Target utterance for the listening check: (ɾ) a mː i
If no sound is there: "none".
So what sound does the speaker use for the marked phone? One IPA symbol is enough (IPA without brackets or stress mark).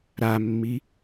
ɾ